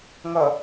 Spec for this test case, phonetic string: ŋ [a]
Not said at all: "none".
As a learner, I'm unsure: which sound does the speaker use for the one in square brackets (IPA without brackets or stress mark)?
ʌ